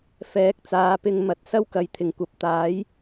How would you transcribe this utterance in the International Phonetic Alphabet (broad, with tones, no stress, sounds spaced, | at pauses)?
f ɛː˨˥ k̚ t͡s aː˨˧ p ɪ˧ ŋ m ɐ˨˥ t̚ s ɐ˥ w k ɐ˨˥ j t̪ʰ ɪ˨˩ ŋ kʷ ɐ˨˥ p̚ t̪ aː˨˥ j